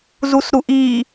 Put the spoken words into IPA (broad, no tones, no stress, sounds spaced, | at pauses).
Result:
z u s ɾ u ʔ i